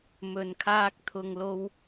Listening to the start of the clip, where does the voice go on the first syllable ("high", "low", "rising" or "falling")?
low